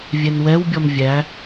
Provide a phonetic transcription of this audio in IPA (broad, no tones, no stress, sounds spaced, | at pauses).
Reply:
vʲ ɛ n w ɛ w bʲ ɔ m vʲ æ